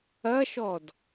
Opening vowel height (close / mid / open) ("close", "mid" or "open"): open